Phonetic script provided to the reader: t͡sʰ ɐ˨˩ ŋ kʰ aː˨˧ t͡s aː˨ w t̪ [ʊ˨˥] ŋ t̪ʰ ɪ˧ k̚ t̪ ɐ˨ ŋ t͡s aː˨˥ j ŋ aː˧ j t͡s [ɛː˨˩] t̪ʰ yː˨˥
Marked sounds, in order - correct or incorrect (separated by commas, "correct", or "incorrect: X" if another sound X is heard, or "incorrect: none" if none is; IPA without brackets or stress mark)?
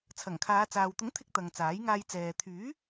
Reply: correct, incorrect: ɛː˨